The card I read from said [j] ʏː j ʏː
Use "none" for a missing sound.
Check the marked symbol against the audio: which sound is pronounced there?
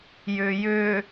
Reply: j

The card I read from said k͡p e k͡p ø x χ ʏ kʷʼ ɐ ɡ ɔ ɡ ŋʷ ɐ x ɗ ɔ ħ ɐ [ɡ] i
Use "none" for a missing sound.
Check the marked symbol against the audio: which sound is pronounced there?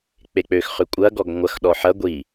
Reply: ɡʷ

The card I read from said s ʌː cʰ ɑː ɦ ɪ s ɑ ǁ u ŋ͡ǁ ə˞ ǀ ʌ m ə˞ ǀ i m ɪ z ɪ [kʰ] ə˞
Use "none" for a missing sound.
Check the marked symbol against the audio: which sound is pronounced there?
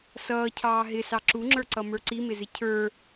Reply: cʰ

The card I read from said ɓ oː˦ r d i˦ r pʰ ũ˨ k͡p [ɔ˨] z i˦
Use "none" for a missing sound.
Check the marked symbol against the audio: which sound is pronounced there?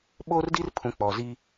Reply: ɔ˨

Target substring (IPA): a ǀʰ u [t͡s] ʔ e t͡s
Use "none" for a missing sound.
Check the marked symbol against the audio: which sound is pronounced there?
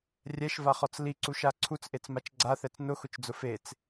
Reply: t͡s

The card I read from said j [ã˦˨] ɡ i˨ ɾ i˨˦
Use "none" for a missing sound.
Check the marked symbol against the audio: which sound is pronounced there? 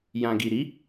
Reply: ã˨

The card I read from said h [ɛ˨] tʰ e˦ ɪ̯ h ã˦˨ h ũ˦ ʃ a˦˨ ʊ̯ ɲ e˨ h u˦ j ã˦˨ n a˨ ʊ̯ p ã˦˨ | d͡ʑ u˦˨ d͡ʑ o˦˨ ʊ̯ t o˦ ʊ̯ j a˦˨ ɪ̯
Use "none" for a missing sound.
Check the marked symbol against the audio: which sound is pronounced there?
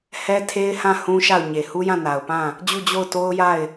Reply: ɛ˦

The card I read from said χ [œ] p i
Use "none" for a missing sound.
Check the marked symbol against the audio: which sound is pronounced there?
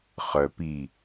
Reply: œ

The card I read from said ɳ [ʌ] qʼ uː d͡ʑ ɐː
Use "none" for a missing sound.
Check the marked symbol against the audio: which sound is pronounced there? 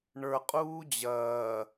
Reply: ə˞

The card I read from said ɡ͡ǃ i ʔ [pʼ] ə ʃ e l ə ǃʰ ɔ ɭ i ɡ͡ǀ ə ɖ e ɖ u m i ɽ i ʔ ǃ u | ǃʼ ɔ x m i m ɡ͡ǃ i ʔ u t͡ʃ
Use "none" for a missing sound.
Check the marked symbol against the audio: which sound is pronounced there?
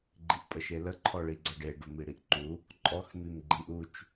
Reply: pʼ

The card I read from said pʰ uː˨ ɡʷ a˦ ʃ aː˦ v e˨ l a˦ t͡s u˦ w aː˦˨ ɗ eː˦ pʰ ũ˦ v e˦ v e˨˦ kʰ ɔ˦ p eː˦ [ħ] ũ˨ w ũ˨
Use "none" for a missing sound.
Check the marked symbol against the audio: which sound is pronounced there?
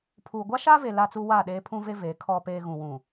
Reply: ɣ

